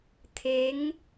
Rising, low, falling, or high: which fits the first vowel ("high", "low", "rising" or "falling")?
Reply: rising